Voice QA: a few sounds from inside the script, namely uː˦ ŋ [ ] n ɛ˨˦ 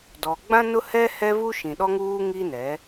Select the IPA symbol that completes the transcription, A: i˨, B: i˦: B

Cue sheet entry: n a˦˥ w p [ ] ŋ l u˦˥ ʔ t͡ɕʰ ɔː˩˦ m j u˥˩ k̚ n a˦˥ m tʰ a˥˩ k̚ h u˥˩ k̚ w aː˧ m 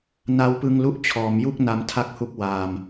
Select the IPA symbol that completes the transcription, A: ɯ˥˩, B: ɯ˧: B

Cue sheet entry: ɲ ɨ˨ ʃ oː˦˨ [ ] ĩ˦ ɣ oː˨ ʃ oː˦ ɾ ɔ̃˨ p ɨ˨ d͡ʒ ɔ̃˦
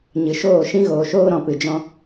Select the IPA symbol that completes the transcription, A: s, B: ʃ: B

